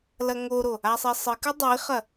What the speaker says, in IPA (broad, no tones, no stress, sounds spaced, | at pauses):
l ɐ ŋ o ɾ o | a sˤ e sˤ ɨ k ɨ dˤ i χ ɐ